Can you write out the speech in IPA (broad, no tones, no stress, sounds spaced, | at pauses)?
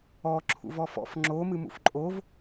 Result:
ɔ ǁʰ ṵ v ɔ f ɔ̰ f ŋ͡ǁ o m ɨ m ṵ f ǃʼ o v